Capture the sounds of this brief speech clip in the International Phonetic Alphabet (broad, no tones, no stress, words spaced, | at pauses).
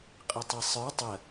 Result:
qʼɪtˤisˤə˞ tˤə